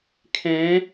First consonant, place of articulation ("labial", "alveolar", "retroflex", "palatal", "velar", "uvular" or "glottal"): velar